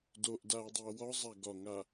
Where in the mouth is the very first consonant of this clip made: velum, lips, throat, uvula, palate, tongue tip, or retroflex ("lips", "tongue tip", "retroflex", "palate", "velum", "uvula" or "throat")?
tongue tip